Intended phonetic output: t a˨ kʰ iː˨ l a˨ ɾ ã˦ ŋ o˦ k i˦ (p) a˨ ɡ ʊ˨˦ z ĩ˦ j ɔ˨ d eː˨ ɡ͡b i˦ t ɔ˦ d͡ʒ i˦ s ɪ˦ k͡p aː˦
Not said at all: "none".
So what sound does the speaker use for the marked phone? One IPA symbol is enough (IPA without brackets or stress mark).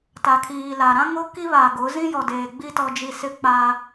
β